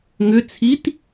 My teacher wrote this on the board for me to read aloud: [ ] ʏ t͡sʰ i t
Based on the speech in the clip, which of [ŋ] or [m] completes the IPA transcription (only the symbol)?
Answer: ŋ